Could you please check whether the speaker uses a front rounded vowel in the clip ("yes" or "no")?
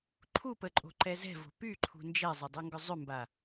yes